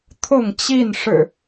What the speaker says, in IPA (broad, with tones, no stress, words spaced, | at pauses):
t̪ʰʊ˥˨ŋt͡ɕi˥˨nʂɻ̩˨˩